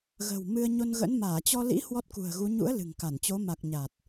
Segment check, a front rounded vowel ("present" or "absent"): absent